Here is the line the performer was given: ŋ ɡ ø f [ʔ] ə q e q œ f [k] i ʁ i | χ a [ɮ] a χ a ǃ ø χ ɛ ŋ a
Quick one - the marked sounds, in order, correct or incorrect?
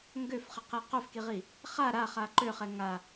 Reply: incorrect, correct, incorrect

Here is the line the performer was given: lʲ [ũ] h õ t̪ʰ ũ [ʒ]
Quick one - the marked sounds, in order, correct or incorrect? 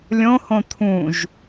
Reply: incorrect, correct

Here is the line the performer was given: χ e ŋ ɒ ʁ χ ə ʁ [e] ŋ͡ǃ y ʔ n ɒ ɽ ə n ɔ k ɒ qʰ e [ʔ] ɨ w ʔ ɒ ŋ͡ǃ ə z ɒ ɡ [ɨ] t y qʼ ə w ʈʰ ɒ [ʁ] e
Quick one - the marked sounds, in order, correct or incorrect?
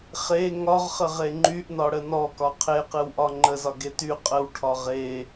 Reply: correct, incorrect, incorrect, correct

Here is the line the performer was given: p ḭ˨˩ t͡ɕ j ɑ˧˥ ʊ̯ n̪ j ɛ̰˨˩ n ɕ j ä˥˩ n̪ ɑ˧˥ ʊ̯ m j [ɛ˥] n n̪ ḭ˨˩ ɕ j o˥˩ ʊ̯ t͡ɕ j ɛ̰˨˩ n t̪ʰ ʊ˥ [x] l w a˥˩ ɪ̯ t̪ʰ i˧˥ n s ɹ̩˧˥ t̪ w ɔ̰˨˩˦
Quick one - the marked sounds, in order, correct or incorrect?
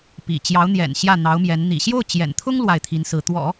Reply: incorrect, incorrect

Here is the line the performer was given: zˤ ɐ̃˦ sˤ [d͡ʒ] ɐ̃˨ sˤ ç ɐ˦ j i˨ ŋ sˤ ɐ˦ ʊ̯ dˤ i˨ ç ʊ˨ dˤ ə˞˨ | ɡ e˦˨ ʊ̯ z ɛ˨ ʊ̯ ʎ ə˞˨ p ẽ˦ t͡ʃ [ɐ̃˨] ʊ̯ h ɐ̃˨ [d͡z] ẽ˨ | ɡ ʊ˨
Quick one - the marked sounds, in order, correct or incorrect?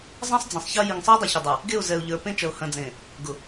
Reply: incorrect, incorrect, correct

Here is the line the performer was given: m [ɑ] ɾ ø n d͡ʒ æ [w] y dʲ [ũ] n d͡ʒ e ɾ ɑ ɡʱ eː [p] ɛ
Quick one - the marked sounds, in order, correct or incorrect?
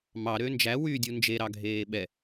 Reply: correct, correct, incorrect, incorrect

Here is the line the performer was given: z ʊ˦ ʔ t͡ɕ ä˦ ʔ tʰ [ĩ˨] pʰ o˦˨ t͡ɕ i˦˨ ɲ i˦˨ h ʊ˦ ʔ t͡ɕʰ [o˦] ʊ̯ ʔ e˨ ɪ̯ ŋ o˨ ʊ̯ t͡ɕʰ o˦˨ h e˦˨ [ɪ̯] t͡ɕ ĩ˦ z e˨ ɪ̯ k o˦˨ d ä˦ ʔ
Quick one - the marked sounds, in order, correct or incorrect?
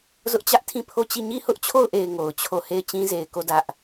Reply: incorrect, incorrect, correct

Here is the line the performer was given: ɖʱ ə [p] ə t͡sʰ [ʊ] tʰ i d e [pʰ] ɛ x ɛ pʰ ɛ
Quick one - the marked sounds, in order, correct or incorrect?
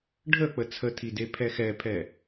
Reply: incorrect, incorrect, correct

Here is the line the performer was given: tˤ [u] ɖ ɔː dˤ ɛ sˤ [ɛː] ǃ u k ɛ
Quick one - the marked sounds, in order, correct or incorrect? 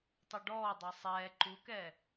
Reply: correct, correct

